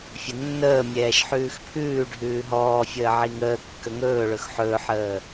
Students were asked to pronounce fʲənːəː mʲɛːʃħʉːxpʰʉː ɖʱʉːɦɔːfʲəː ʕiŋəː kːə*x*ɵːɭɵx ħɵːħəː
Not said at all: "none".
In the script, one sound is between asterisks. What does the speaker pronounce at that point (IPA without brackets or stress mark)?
ŋ